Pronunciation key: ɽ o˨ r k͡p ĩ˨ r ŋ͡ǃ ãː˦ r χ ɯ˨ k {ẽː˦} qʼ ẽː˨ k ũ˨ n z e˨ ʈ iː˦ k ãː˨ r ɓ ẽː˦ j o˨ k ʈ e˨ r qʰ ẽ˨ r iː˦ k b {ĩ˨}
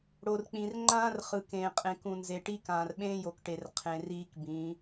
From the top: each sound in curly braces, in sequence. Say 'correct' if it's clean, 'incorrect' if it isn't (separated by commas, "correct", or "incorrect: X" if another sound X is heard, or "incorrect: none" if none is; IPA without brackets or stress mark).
incorrect: ẽː˨, incorrect: ĩ˨˦